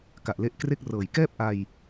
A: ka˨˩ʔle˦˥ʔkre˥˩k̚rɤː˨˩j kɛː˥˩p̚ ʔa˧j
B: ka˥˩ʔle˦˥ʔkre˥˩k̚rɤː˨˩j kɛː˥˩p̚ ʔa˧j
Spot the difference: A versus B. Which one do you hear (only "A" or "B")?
A